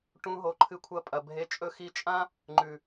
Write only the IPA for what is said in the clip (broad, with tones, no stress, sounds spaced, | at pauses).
ʈ ũ˧ ɦ o˨ ǃʰ ɨ˧ kʷʰ ɐ˧ pʼ ɐ˨ bʱ e˧ t͡ʃʼ ɵ˧ x i˧ t͡ʃʼ ã˦ | ŋ͡ǃ ʉ˨